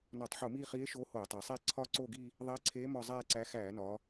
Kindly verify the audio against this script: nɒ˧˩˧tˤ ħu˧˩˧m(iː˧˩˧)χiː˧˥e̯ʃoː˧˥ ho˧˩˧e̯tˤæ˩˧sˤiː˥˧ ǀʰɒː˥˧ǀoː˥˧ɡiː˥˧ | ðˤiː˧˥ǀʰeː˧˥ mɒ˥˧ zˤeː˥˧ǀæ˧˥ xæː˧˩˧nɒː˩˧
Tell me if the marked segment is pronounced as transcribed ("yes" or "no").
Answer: no